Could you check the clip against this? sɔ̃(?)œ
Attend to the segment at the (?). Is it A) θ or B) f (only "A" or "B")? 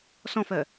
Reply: B